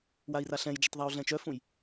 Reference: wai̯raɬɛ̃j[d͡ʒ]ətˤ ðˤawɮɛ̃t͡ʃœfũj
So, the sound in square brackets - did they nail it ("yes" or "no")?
yes